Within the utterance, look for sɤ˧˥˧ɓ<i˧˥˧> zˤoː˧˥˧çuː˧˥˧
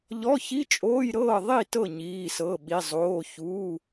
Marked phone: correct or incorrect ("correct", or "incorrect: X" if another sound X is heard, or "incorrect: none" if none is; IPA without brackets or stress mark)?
correct